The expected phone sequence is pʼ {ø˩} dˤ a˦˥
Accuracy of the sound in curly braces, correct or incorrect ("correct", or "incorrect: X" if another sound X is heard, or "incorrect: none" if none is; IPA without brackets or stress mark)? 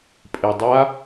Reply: incorrect: e˩